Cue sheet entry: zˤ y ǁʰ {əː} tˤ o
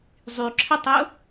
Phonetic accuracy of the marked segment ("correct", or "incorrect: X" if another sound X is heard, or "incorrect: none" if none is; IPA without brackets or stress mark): incorrect: ə